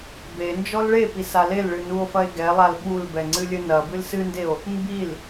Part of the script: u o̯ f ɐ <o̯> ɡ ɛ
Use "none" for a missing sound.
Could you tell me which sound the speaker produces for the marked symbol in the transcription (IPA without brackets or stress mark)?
e̯